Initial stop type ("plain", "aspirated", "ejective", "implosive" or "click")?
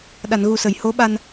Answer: implosive